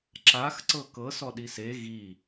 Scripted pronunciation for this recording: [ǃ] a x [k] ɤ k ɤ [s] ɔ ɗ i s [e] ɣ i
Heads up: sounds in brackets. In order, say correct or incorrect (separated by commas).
incorrect, incorrect, correct, correct